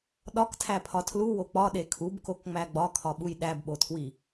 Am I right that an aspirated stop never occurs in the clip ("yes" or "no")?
no